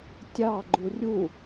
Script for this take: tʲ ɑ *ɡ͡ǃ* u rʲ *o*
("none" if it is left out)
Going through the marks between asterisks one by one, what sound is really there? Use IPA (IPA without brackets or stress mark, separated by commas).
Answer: ɡ͡ǃ, u